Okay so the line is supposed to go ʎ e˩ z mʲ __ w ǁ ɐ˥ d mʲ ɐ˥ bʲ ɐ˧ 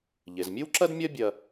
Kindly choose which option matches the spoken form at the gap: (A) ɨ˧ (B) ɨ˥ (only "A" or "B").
B